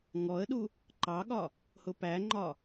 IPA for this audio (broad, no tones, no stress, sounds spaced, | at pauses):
ŋ ɔ ə̯ ɗ u | ǃ ɑ ɠ ɒ | h ʊ p æ ŋ͡ǃ ɒ